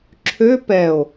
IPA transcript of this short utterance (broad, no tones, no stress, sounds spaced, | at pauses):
ǁʰ ø p ɛ o̯